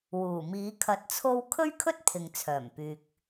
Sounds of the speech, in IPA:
w uː˨˩ m iː˨˧ kʰ ɐ˧ t̚ t͡sʰ o˥ w kʰ ɵ˥ ɥ kʰ ɵ˥ t̚ pʰ ɪ˨ ŋ t͡sʰ œː˨˩ m p yː˨ k̚

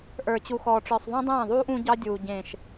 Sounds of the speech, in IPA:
ʔ ə˞˨ t͡ɕ u˨ x ɔː˨ ʈ͡ʂ ə˞˨ sˤ ðˤ õ˦ dˤ ẽː˦˨ ðˤ uː˦ ʔ ũ˦ ɟ ɑ˦ dʲ uː˨ ɟ ẽ˨ ʃ

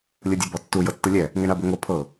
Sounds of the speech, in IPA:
lʲ ɯ dʲ a b ɔ tː u j ɤ tː ɯ lʲ ɛ | ŋ ɛ ɳ a b o ŋ o pʰ ɤ

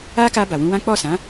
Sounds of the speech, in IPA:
a˦ k a˧ b a˨ w ũ˧ w ã˦ k͡p ɔ˦˨ s ã˨˦

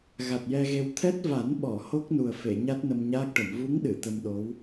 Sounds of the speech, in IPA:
ɣ a˨˩ t̚ j ɛ˧ ɣ e˧ w t̪ʰ ɛ˦˥ t̚ v a˨˩˦ n ɓ ɔ˨˩˨ h o˦˥ k̚ n u˨˩ ə̯ f e˨˩˨ ɲ a˦˥ t̚ n ə˧ m ɲ aː˦˥ k̚ ʈ ə˨˩˨ m v u˧˥ ŋ ɗ ɨ˨˩˨ t̪ ə˧ m ɗ o˧˥ w

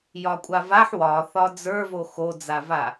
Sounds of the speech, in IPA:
j ɒ kʷʼ a v a ħ w ɒ θ ɒ d͡z ə˞ v o x o d͡z a v a

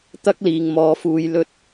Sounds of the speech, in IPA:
t̪ ɐ˥ k̚ l iː˨ ŋ m ɔː˨˧ f uː˨˧ j l ɵ˧ t̚

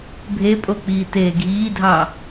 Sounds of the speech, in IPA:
bʱ e pʼ o k͡p iː t eː ɡʱ iː dʱ ɑ

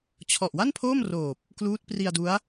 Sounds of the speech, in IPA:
t͡ɕʰ ɔ˨˩ ʔ w a˥˩ n pʰ oː˥˩ m r oː˨˩ p̚ | k l uː˦˥ t̚ p r i˧ a̯ d u˦˥ a̯

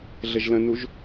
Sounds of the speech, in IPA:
ɮ ə ʒ l ə̃ n u ʒ

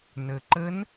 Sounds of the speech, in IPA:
n ə˩ ǃ ə˧˥ n

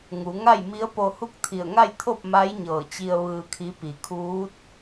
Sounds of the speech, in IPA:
ŋ u˩˧ ŋ a˥˨ j m i˧˥ ə̯ p o˧ h u˥˨ k̚ t̪ʰ i˧˩ ə̯ ŋ a˥˨ j t̪ʰ o˥˨ p̚ m a˧˥ j ɲ ɤː˧˩ t͡ɕ i˧ ə̯ ʋ ɯː˧ kʰ i˧˥ p i˩ kʰ uː˧˥ t̚

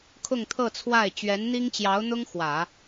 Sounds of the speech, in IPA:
kʰ ʊ˥˧ ŋ t̪ʰ ɤ˥˧ t͡sʰ w a˥˩ ɪ̯ t͡ɕ ɥ ɛ˧˥ n n̪ i˥ ŋ t͡ɕ j ɑ˧˥ ʊ̯ n̪ ʊ˥ ŋ x w ä˨˩˦

